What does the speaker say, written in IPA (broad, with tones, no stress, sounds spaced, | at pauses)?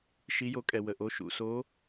ʃ i˨˦ j o˨˦ kʼ ɛ˩ w ə˩ ʔ o˩˧˩ ʃ ṵ˩ s o˨˦